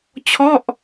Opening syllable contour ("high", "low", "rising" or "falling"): falling